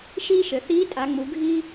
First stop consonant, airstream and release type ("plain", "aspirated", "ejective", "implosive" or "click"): ejective